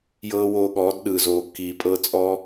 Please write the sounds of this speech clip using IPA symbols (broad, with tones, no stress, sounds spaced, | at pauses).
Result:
j ɤː˧ w oː˧ ɠ ɔː˨˦ d ɗ ɯ˨ z oː˨ kː iː˨ pʼ ɤ˧ t͡sʼ ɔː˦